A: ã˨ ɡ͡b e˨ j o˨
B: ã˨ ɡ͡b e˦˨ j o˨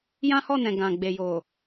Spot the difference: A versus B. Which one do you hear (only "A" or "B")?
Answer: A